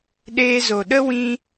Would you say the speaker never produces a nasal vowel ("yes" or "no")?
no